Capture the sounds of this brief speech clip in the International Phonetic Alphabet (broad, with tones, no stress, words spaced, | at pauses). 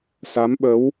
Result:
sa˨˦mɓə˨˦w